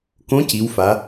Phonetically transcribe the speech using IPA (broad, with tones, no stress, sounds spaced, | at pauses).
k õ˧˥ c i˩˧ w f a˩˧